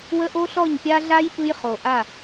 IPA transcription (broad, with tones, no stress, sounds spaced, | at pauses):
w ə˦ ʔ o˦ ɬ ɔ˦˨ ɲ pʲ a˦ ɮ a˦ j p ɯ˦ j χ o˨ ʔ a˦˨